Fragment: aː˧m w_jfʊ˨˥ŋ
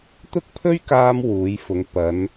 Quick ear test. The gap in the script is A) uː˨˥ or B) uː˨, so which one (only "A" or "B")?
A